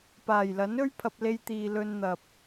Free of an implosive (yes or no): yes